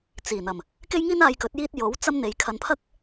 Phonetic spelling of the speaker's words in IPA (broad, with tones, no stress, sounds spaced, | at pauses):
t͡s iː˨˩ n̪ ɐ˨˩ m | k e˥ j ŋ iː˥ n aː˧ j k ɵ˨˥ t̚ j iː˥ t̚ j o˨˥ w t͡s ɐ˥ m n̪ e˨˧ j kʰ ɐ˧ n pʰ ɐ˥ k̚